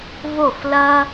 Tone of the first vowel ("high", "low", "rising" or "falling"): falling